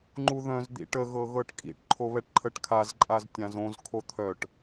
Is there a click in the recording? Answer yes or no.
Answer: yes